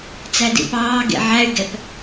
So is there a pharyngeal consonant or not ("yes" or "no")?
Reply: yes